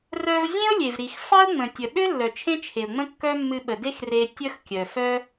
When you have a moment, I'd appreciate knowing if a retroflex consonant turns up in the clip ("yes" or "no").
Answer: no